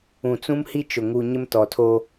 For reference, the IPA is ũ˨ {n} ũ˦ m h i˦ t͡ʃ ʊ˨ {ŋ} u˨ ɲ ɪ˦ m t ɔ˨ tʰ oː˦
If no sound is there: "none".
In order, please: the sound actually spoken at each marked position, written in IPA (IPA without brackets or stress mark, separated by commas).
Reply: t͡s, ŋ